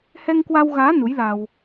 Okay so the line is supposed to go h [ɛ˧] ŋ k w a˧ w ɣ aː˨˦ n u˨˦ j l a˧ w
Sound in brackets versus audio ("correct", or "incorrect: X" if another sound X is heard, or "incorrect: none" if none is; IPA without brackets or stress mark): correct